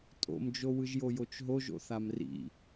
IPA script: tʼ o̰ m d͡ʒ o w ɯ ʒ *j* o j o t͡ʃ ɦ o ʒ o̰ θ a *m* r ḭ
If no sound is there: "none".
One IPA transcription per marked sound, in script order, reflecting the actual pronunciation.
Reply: j, m

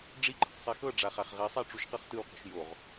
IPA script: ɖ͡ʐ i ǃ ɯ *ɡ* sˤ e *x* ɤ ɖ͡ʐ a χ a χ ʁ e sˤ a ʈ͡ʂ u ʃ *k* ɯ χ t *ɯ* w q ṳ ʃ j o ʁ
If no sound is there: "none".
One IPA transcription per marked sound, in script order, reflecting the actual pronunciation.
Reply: q, x, q, ɯ

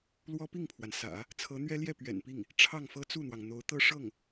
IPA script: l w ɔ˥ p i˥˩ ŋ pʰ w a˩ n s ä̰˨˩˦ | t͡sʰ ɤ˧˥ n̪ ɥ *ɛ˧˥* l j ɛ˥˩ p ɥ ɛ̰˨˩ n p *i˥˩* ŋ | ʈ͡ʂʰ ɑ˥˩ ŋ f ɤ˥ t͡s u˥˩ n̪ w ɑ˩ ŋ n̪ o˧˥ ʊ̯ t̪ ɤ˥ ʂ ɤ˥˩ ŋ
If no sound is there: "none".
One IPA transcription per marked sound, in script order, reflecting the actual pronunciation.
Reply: ɛ˥, i˥˩

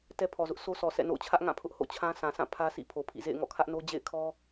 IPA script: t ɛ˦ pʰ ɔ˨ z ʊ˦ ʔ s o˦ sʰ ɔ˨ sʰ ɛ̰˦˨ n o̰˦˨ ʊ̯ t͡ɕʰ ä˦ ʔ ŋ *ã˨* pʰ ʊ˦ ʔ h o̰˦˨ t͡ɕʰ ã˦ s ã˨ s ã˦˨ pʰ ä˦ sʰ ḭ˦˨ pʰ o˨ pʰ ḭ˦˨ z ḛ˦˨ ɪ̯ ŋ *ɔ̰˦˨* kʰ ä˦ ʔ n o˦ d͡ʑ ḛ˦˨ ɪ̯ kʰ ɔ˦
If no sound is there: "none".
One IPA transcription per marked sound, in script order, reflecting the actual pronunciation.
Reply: ã˦˨, ɔ̰˦˨

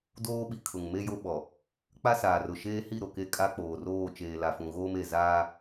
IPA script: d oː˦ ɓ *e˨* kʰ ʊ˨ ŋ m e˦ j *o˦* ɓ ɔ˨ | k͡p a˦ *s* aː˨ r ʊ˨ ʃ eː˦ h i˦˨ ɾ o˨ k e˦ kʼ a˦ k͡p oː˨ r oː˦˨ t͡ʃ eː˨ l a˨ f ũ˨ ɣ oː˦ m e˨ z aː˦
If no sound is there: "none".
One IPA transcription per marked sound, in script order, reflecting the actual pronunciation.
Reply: i˨, o˦, s

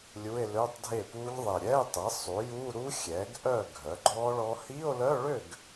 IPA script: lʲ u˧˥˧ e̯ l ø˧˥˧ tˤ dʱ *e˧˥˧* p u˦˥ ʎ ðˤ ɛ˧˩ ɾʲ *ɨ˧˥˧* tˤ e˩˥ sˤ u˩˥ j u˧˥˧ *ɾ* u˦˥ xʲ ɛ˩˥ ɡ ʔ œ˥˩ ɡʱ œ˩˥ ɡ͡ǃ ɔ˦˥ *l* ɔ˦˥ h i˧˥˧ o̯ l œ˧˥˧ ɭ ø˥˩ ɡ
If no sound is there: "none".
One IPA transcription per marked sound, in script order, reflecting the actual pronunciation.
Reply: e˥˩, ɛ˧˥˧, ɾ, ɭ

